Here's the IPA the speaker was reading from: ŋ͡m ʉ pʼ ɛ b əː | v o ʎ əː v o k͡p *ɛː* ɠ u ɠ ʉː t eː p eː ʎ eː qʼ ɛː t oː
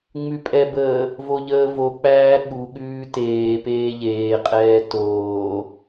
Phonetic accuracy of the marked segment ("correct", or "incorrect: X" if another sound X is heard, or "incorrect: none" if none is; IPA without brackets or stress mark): incorrect: æː